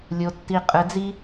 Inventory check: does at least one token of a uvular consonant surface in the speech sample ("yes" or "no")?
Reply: yes